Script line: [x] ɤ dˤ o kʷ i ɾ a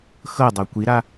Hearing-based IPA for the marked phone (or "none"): x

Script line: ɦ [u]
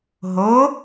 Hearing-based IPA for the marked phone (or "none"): o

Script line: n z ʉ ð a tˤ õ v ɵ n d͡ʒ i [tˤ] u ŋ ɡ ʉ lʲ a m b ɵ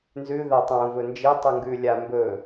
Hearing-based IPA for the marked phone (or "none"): tˤ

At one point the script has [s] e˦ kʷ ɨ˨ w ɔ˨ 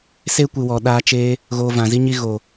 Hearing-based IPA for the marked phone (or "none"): s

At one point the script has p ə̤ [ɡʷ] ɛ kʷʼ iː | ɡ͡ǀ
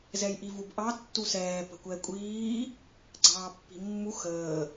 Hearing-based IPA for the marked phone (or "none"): kʷ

